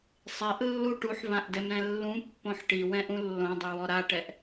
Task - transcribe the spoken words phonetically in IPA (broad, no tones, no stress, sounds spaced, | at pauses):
sˤ ɛ ʔ lː u ʈ u ħ v ã ʔ d ɛ m ɾ ɛ̃ lː ũ pː õ ħ ʈ i w ɛ̃ ʔ ũ lː õ dˤ ɯ w ɔ ɾ a ʈ ɛ ʔ